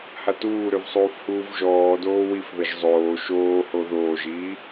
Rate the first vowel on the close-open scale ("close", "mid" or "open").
open